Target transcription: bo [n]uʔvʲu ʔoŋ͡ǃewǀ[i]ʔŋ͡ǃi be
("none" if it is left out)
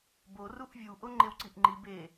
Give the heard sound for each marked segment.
r, i

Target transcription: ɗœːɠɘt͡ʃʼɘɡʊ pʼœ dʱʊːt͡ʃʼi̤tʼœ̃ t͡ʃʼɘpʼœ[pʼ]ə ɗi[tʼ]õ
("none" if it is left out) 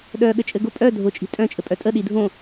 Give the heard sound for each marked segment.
tʼ, dʱ

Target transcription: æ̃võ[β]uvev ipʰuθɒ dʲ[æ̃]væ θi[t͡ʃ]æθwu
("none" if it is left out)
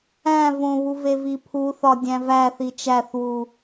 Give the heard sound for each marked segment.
β, æ̃, t͡ʃ

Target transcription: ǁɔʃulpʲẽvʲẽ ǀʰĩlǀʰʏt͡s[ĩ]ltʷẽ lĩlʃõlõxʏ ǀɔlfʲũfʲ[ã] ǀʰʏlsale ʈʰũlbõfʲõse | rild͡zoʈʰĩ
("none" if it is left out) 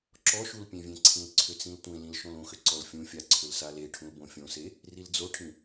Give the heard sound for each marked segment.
ĩ, a

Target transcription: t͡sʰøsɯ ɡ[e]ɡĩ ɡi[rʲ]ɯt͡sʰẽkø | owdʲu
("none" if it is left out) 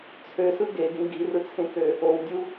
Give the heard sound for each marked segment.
e, r

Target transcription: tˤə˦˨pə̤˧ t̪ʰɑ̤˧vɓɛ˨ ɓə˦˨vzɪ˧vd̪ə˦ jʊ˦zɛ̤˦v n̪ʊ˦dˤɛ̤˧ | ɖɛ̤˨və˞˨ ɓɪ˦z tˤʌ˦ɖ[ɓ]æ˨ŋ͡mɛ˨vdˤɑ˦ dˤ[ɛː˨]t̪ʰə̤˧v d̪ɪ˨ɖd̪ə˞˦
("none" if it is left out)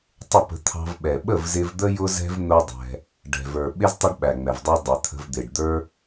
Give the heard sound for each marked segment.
ɓ, ɛ˨

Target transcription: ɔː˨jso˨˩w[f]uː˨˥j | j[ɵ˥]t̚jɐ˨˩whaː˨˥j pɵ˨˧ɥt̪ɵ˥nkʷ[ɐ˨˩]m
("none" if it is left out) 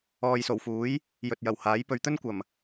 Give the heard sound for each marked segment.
f, ɵ˨, ɐ˨˩

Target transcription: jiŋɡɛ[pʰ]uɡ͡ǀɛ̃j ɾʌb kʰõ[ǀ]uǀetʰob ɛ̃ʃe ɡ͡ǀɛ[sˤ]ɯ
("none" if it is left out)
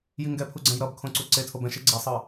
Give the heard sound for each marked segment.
pʰ, ǀ, sˤ

